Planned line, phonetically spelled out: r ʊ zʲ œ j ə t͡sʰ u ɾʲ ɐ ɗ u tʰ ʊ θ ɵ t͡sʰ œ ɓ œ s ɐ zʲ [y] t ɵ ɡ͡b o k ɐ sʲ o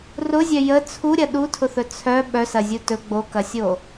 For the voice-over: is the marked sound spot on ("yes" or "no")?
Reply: no